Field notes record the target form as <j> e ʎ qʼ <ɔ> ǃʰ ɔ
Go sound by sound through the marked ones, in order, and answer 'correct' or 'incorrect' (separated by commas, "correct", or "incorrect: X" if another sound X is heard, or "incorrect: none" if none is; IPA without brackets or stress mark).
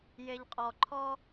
correct, correct